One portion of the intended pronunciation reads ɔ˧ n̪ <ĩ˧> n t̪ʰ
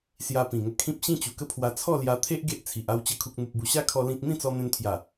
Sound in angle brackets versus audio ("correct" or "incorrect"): incorrect